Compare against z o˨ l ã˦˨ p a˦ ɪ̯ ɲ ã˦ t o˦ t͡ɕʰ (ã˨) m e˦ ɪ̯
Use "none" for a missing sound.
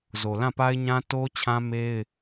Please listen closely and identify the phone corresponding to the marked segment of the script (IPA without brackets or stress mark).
ã˦